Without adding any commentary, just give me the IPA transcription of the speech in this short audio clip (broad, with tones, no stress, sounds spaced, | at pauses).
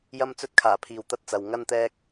j ɐ˧ m t͡s ɵ˧ t̚ kʰ aː˨˩ pʰ iː˨ w t̪ ɐ˧ t̚ t͡s ɐ˨ w ŋ ɐ˧ n t̪ ɛː˧ k̚